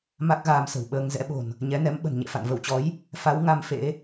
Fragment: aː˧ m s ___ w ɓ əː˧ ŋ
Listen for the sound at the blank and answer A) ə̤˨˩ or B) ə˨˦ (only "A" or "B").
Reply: A